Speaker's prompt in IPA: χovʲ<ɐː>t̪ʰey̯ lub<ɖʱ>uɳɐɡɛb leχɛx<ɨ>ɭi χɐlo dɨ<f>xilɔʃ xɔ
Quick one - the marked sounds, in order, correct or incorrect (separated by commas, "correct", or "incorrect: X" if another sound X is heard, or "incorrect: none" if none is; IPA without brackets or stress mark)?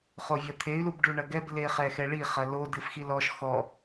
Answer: incorrect: ɐ, incorrect: ɖ, incorrect: ɛ, correct